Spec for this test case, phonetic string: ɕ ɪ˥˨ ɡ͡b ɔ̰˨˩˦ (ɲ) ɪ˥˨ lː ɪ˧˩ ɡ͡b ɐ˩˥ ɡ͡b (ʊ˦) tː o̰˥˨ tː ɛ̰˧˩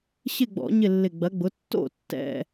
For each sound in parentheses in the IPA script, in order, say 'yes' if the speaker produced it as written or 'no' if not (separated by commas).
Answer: yes, no